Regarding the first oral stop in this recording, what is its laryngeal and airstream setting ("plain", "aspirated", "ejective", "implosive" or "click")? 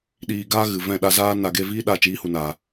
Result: implosive